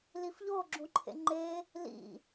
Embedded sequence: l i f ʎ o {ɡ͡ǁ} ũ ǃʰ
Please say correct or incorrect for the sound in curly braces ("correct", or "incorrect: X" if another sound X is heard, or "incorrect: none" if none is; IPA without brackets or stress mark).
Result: correct